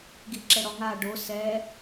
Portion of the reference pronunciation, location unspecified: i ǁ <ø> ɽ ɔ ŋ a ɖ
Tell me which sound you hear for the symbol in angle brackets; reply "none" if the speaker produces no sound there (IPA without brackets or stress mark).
ɛ